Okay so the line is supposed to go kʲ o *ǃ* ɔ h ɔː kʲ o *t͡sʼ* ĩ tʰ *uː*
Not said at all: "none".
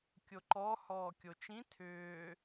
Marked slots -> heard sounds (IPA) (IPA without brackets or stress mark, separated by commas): ǃ, t͡ʃ, ʏː